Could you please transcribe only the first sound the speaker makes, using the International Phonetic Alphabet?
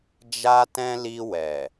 d͡ʒ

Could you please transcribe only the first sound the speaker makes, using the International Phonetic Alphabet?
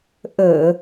ʔ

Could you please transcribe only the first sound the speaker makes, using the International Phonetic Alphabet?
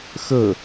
x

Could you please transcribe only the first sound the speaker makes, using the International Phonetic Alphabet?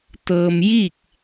t̪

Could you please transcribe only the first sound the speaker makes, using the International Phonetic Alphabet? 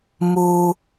m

